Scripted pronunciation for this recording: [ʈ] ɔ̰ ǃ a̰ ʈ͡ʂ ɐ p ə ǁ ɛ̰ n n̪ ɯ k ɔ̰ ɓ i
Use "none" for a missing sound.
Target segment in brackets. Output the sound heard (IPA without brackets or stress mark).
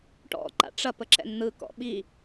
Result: ʈ